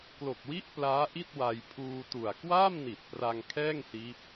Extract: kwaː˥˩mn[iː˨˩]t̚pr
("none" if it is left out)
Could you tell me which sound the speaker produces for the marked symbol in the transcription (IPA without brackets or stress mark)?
i˨˩